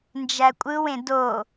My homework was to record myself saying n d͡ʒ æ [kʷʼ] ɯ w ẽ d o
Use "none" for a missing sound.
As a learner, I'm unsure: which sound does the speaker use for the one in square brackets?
kʷʼ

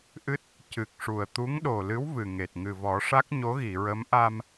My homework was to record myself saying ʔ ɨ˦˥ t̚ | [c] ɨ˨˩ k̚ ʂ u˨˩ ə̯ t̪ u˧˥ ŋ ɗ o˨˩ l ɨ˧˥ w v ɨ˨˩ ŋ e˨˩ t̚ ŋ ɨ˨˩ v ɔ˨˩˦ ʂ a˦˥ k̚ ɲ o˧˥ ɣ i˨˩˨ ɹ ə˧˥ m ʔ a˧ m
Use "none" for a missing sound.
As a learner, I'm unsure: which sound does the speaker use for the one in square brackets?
c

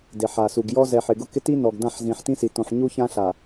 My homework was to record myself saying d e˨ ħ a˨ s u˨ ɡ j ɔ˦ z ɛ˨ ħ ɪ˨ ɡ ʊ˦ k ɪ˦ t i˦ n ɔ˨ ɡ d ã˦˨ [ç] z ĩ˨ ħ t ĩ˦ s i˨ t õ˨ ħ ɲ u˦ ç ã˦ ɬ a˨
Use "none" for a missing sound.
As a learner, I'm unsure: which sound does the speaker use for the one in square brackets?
ħ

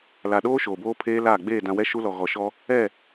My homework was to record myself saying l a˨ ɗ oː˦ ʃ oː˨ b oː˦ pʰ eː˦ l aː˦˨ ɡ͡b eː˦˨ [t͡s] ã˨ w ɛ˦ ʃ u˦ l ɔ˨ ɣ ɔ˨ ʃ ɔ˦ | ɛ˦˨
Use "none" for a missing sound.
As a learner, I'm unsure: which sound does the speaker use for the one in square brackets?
d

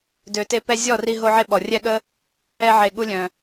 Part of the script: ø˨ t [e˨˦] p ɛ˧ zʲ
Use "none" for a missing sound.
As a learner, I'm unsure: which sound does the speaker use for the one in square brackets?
e˧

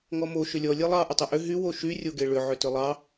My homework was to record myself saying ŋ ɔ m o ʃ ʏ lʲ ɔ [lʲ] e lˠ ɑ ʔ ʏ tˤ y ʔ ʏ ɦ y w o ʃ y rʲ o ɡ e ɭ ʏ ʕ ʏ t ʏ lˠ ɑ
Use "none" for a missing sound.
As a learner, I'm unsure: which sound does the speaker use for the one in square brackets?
lʲ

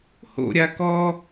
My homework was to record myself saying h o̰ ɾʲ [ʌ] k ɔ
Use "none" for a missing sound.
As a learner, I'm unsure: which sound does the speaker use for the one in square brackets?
a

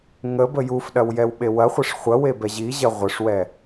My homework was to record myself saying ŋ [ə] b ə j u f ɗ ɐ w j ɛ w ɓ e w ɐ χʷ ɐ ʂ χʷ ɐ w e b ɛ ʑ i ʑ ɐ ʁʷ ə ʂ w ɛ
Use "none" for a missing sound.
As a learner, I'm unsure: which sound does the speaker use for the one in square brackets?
ə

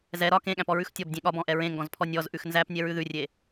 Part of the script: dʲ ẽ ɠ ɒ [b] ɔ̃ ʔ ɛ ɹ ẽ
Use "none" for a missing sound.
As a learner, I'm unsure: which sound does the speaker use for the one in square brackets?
b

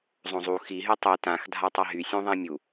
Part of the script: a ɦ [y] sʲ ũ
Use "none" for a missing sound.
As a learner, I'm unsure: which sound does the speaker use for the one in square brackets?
y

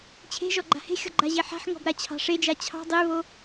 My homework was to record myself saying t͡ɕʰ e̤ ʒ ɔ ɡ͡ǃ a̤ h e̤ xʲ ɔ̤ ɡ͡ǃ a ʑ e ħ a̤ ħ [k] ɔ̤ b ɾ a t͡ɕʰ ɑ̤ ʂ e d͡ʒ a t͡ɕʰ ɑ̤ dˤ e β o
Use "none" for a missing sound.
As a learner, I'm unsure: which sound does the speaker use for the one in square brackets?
ŋ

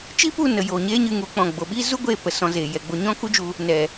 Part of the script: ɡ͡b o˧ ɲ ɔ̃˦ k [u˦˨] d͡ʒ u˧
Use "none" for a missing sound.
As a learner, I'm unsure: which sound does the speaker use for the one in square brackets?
u˦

